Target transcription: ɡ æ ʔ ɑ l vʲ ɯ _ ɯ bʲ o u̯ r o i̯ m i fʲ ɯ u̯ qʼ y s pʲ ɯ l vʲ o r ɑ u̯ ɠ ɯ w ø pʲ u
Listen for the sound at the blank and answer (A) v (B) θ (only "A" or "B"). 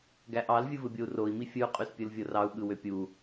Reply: A